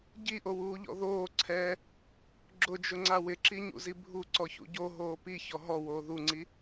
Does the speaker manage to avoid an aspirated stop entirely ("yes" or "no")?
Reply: no